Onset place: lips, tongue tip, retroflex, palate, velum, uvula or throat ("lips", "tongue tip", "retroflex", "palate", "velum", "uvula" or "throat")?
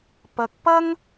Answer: lips